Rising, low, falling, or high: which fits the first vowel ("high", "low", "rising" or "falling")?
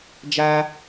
high